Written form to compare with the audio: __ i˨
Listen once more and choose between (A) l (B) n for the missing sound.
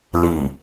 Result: A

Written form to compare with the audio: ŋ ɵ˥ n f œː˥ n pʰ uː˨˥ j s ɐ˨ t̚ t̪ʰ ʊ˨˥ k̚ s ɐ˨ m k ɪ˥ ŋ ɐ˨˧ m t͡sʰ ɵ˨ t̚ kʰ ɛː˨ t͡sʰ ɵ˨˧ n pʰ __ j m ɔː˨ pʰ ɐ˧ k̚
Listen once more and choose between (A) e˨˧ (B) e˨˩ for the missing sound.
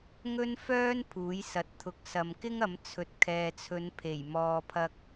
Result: B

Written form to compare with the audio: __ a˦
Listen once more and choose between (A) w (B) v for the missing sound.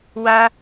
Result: A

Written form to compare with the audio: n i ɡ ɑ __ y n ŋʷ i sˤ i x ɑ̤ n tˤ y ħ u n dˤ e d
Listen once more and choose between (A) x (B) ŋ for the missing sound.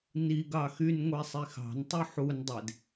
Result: A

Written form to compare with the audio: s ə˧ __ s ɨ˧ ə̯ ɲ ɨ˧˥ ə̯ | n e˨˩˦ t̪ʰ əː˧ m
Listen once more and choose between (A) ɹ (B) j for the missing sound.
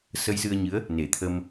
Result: B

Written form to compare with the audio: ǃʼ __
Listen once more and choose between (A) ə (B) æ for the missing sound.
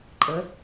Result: A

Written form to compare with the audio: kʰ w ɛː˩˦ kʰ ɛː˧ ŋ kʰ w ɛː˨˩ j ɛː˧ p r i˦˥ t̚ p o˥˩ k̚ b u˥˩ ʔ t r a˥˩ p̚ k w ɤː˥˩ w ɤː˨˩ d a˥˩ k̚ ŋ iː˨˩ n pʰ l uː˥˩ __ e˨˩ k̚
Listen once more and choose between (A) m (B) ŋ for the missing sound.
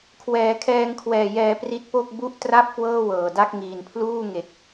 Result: B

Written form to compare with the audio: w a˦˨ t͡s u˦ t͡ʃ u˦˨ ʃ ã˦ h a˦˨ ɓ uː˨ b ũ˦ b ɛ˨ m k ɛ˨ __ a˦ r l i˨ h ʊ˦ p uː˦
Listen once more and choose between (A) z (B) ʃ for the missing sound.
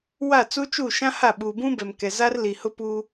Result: A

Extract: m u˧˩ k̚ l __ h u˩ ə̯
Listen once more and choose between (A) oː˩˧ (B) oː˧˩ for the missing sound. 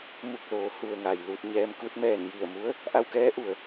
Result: A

